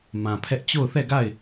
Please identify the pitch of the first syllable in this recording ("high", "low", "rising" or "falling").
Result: low